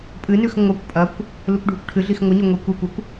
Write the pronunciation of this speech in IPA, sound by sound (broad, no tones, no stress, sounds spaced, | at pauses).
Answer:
pʼ ɨ n ʉ x ŋʷ a kʷ pʼ ɐ kʷ | l u kʷ ɖʱ u kʷ ʈʰ ɨ ɮ i x ŋʷ ɨ ɲ o ŋʷ e kʷ e kʷ ɵ kʷ